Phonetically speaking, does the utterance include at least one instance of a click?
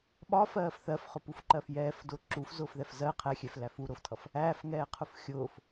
yes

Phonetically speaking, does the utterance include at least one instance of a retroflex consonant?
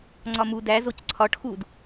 yes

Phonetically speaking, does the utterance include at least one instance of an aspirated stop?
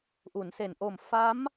no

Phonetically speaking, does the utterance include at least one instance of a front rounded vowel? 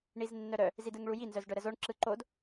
yes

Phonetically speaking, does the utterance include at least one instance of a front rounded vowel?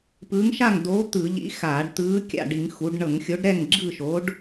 no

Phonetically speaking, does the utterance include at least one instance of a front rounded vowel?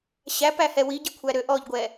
yes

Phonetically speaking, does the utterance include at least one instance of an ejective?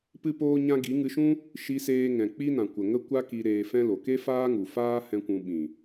no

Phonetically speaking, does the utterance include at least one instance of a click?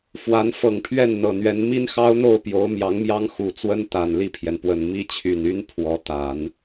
no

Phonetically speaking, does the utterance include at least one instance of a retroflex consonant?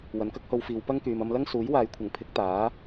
no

